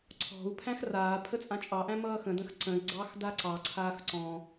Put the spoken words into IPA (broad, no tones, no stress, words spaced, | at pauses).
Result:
ǀʰɔ̤u̯pʰæ̃x raː pʰət͡sʼãt͡ʃʼɑʔæ̃ mʌːxə̃də̃x ǀə̃i̯ɡ͡ǀɑx daǀɑǀʰaːx ǀɔ̃